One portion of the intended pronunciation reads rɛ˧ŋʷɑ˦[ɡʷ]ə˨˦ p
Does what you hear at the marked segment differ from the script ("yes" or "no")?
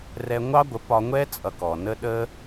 no